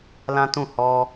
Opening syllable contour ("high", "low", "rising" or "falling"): high